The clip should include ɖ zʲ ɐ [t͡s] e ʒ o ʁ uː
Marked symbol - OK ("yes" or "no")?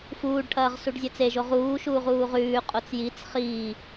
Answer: yes